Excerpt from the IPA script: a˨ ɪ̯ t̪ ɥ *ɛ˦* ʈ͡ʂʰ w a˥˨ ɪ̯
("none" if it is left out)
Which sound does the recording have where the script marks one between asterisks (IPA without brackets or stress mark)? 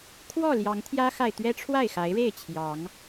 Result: ɛ˦